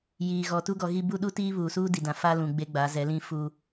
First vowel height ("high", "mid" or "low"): high